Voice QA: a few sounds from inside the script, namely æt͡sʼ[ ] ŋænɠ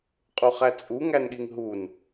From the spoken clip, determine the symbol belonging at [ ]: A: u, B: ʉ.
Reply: A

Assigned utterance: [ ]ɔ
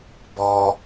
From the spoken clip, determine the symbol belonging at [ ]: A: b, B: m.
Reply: A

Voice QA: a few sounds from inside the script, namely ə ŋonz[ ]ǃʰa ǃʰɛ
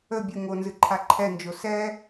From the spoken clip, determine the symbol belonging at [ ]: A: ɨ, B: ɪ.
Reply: A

